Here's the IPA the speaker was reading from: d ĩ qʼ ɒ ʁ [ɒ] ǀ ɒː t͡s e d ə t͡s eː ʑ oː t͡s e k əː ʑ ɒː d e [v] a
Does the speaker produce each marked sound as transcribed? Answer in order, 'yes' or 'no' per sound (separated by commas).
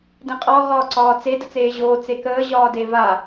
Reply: no, yes